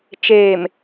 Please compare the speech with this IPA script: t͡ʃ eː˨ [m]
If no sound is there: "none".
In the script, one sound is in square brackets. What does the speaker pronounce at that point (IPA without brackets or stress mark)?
m